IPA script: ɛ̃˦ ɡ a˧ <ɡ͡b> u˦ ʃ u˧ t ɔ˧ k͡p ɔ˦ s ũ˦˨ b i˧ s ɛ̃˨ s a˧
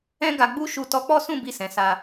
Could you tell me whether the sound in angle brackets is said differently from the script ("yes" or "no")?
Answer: no